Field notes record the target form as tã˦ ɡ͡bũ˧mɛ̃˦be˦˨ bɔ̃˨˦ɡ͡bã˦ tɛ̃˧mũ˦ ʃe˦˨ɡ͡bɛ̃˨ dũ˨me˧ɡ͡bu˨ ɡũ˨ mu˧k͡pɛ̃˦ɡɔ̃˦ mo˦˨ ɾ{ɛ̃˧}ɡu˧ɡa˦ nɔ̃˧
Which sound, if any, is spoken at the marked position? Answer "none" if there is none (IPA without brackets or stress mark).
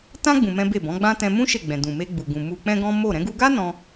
ɛ̃˧